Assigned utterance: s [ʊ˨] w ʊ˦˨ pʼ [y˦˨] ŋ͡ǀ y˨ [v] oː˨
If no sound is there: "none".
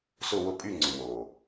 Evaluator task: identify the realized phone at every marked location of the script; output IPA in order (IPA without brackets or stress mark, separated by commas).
ʊ˦˨, y˦˨, w